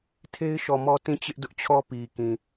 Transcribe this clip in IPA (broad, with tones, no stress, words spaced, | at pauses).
tʰe˦ɪ̯ʃɔ˨mɔ˦ tĩ˦˨ t͡ɕɪ˦ʔdʊ˦ʔt͡ɕʰɔ˦ pi˨kĩ˨